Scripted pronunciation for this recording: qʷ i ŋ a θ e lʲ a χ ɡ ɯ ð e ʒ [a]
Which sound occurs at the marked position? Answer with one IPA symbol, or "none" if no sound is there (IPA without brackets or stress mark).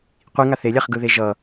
ʌ